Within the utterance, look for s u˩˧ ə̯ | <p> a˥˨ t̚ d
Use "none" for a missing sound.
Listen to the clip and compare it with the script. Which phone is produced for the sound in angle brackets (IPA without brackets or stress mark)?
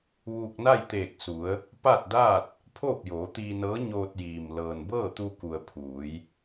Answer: p